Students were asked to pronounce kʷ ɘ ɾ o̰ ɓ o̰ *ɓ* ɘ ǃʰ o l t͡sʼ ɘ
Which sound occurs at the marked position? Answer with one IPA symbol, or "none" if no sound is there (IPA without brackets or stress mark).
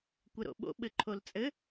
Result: ɓ